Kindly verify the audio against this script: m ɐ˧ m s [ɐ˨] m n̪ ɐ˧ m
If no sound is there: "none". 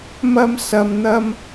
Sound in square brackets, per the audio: ɐ˨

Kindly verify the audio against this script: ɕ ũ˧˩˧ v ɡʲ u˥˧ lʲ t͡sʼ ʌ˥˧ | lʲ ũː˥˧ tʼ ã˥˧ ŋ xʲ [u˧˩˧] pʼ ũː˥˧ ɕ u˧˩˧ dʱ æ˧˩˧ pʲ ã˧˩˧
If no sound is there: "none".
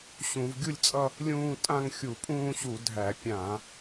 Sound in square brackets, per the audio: u˧˩˧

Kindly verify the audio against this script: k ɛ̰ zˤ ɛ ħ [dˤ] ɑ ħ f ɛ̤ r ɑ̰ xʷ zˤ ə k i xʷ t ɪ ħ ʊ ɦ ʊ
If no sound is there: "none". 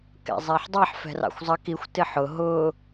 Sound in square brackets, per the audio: dˤ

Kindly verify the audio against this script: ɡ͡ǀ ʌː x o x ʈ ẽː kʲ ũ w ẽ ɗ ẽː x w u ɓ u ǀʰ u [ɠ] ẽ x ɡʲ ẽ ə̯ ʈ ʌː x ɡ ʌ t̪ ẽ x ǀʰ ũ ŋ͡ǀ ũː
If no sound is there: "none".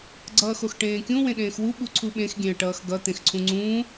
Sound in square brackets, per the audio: ɓ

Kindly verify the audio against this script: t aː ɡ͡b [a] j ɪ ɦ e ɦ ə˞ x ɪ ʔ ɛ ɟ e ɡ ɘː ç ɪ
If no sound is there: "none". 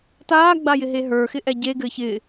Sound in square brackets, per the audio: a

